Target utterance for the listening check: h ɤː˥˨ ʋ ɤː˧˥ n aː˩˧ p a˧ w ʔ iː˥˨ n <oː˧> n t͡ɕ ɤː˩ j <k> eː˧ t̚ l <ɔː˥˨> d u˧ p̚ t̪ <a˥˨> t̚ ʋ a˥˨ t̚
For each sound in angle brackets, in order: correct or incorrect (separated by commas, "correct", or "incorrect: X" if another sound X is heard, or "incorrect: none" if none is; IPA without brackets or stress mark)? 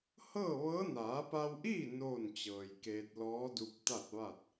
incorrect: oː˥˨, correct, incorrect: ɔː˧˥, correct